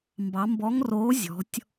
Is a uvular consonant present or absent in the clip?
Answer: absent